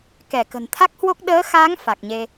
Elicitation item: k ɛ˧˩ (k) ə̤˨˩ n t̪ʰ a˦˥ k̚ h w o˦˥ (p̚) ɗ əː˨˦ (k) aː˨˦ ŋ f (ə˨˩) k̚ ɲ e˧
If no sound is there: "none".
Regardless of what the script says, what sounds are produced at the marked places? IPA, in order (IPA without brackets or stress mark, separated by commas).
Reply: k, k̚, x, a˨˩